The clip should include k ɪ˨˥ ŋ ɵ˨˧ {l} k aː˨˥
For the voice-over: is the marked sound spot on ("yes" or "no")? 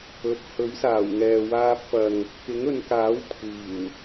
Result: no